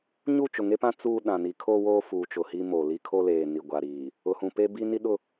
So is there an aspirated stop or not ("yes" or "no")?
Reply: yes